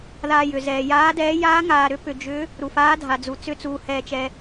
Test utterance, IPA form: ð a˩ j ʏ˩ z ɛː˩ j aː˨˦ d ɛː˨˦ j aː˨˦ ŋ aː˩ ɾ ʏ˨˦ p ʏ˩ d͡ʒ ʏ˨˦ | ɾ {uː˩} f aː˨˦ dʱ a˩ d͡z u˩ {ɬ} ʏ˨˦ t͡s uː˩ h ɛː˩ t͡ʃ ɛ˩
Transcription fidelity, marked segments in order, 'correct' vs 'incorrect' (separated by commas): incorrect, incorrect